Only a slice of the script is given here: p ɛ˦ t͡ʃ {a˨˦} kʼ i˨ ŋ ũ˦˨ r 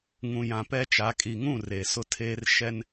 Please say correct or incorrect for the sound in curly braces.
correct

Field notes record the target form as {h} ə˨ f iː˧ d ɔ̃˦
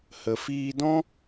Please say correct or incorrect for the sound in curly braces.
correct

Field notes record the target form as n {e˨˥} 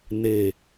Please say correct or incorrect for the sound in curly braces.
incorrect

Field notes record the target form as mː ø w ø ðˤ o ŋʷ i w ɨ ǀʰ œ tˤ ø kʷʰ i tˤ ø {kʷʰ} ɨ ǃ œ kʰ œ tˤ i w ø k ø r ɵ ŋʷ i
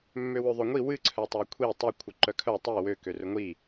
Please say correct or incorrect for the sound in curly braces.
correct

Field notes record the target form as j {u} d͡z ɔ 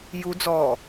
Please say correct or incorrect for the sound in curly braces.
correct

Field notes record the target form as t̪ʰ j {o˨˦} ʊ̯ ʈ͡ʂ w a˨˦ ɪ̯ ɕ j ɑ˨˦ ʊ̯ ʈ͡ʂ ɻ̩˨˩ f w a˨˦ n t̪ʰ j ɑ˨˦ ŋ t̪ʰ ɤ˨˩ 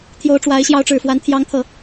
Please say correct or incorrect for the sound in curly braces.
correct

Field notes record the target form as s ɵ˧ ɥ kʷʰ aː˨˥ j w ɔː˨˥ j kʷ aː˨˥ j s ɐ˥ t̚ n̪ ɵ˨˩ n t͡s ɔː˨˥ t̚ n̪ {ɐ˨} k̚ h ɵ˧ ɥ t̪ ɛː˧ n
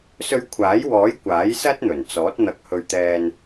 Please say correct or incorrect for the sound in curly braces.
incorrect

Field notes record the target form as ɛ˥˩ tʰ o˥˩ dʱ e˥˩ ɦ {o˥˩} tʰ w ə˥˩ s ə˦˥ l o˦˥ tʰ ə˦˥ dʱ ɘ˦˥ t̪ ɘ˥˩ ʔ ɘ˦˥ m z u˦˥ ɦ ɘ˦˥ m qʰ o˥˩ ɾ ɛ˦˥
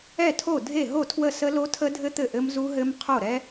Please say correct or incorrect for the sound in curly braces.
correct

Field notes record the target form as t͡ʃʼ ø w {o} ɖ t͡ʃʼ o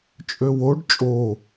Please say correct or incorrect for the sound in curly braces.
correct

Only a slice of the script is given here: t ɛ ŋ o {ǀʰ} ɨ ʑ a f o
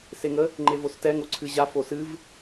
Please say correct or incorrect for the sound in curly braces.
correct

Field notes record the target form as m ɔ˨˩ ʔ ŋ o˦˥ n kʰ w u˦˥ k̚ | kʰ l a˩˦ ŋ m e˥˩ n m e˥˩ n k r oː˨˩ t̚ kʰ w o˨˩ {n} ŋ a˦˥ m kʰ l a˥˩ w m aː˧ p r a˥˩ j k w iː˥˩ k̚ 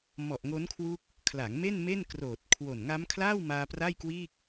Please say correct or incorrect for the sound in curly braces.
correct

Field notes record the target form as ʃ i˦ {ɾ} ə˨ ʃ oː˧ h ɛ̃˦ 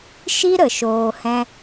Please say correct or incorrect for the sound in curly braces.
correct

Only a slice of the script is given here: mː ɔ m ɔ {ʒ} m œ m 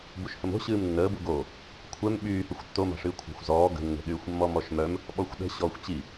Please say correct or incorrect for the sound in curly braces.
incorrect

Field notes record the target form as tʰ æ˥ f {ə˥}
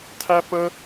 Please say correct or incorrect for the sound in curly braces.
correct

